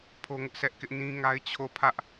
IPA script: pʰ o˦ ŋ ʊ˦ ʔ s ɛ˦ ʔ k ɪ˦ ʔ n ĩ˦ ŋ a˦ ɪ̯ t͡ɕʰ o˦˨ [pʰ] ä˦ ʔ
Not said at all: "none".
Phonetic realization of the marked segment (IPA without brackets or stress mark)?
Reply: pʰ